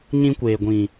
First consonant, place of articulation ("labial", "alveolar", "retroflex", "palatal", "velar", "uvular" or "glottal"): palatal